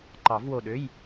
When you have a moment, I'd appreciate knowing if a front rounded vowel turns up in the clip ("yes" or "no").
yes